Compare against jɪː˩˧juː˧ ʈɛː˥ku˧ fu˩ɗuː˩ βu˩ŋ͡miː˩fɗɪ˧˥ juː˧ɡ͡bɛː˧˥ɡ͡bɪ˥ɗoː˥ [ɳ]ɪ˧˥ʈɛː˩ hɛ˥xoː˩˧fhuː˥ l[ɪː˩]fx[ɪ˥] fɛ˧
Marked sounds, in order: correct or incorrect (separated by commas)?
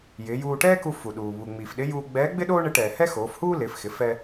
correct, incorrect, incorrect